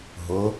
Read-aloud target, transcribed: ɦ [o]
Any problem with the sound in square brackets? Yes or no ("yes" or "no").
no